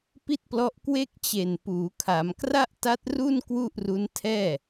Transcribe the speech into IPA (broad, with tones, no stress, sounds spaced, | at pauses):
p i˥˩ t̚ p l ɔ˦˥ ʔ k w e˥˩ k̚ t͡ɕ e˨˩ n p uː˩˦ kʰ a˩˦ m k r a˥˩ ʔ t a˦˥ t̚ r u˥˩ n k w u˥˩ ʔ r u˦˥ n tʰ ɛː˥˩